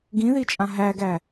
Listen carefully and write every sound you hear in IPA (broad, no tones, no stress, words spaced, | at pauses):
ɡĩðit͡ʃʼã ɦæɡæ